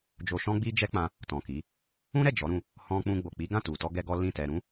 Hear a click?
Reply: no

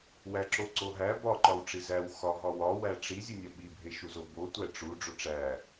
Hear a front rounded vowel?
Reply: no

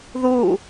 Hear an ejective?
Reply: no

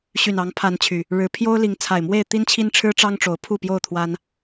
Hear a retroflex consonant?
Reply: yes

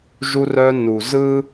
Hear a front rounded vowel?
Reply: yes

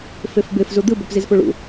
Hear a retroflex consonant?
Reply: yes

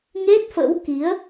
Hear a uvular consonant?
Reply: no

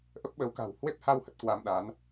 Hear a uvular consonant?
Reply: no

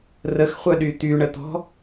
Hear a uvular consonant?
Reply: yes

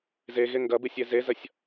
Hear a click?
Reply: no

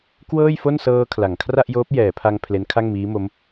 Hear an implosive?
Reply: no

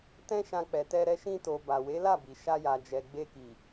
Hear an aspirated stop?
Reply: no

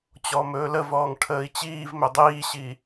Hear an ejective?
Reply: no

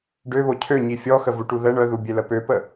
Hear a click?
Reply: no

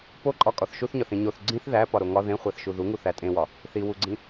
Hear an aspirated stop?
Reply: no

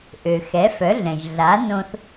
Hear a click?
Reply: no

